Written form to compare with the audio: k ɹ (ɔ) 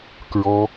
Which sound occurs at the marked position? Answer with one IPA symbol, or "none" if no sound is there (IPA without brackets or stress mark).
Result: ɔ